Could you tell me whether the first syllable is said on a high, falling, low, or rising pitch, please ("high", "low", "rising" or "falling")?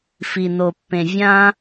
low